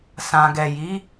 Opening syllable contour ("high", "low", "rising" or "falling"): low